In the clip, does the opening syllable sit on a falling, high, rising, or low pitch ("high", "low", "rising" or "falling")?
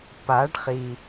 rising